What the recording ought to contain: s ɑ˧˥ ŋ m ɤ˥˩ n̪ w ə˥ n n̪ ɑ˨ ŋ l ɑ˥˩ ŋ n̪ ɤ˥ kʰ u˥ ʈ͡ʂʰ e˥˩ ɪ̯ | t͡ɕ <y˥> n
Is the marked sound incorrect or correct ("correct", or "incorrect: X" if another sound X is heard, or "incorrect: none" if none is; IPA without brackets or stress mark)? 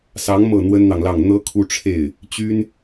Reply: correct